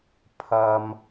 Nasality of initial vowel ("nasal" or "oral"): oral